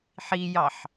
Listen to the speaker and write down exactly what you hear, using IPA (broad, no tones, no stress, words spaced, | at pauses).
ħijɑħ